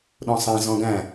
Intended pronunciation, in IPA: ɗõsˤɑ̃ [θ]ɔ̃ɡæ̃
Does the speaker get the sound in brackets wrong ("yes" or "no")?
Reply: yes